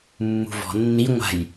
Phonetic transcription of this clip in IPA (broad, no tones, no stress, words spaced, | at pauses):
mːṳvɔ̤ nːi ŋʷa̤j